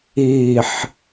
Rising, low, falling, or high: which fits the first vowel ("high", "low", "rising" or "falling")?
falling